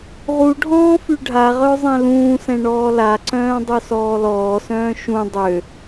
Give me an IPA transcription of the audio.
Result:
ʁ u ɖʱ ɔ̃ː f y ɖʱ a ʁ œ zˤ ɛ̃ l ũː s ɛ̃ ɳ ɔː l a ǀ œ̃ː dˤ œ s ɔː l ɔː s œ̃ː ʃ ũ dˤ ø

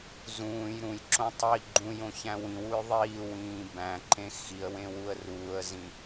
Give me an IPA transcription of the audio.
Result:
z ũː j ɾ ũ j ǁ õ tˤ i ɡ͡ǃ ũ j õ ç æ̃ w ĩ w u j ðˤ iː w ĩː b æ̃ ǃ ẽ x i ə̯ w ẽ w u ə̯ r uː ə̯ z ĩ

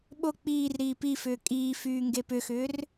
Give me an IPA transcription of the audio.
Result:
ɓ o k͡p iː r ɾ iː p i f ʏː kʼ iː f yː ŋ ɡ e p ʏ x ʏː r

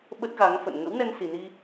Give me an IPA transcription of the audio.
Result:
ɓ ə˦˥ t̚ ɣ a˨˦ ŋ f ə̰˧˨ n ŋ ə̰˧˥ w n ɛ˧ n s i˨˩ n i˧

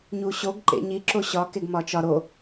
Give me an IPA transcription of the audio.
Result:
ɲ u ɕ o ɡ ǃ ḛ ɲ i ǁ o ɕ ɒ k e ɡ m ɒ t͡ʃ ɒ ɾ o

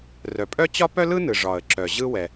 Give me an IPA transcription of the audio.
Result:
r œ˩ pʼ œ˥ t͡ɕ ɒ˥ p œ˥ l ɯ˥ n ɯ˩ ʐ ɒ˩ ə̯ ǁ œ˩ ʑ ɯ˥ w ɛ˩

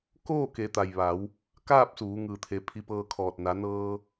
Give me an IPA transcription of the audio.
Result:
k oː˥˨ k e˩˧ t̪ a˩ j ʋ a˩˧ w | k aː˥˨ p̚ s uː˩˧ ŋ ɯː˩ t̪ʰ e˩˧ pʰ i˧ p ɤː˧ kʰ ɔː˧˩ t̚ n a˩˧ n ɤː˧

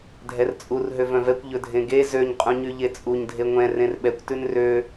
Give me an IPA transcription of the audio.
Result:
dʱ ɛ r t͡sʼ u r ɦ ø v œ̃ v ɛ kʷ ʎ ɵ dʱ ẽ ɡ e z ø ɲ qʼ ũ ɲ y ʎ e t͡sʼ u ɲ dʱ e ŋʷ ɛ̃ r ẽ r ɓ ɛ kʷ t ʉ n r ø

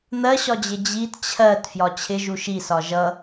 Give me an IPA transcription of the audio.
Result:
n̪ ɜ ɕ ɒ d͡ʑ ɪ d͡ʑ i t t͡ɕʰ ɜ t f j ɒ t͡ɕʰ ɪ ʒ u ʃ i s ɒ ʒ ʌ

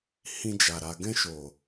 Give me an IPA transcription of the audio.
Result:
h ĩ˧ d͡ʒ a˨ ɾ a˨ ɡ ɛ̃˧ ʃ o˨

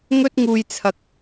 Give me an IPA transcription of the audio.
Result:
ŋ ɵ˥ t̚ ŋ uː˧ j t͡sʰ ɐ˧ k̚

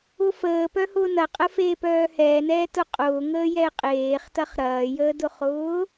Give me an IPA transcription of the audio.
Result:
ʊ f əː p œ h ʊː n ɐ qʼ ə f eː p œː h ɛː n ɛː t ʊ qʼ ʊː ŋ əː j ɛ ɪ̯ qʼ eː χ t ɐ χ ɾ ɐː j əː d ʊ χ ʊː

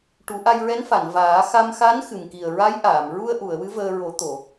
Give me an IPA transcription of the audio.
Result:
ʈ u˨˩˦ ʔ a˧ j ɹ ɛ˧˥ n f a˨˩˨ n v aː˨˩˦ x a˧ m x a˧˥ n x ɨ˨˩ m k i˨˩ ə̯ ɹ a˧˥ j ʔ aː˨˩˨ m ɹ u˧ ə̯ ʔ u˨˩˨ ə̯ w ɨ˧˥ v əː˧ ɹ o˨˩˦ t̪ o˨˩˨

